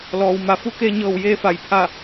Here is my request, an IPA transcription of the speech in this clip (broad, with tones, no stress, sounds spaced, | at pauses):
l ɔː˩ w m a˩˧ f u˧˥ k eː˧ ɲ ɤː˧˩ w j eː˧ f a˩˧ j pʰ a˧˩